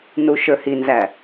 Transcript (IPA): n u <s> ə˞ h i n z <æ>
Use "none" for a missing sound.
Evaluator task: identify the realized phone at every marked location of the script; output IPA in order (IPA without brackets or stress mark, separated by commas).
ʃ, æ